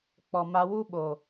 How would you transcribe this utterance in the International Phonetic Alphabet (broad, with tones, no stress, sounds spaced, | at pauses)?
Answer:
k͡p ɔ˨ m a˧ w u˦ ɓ o˨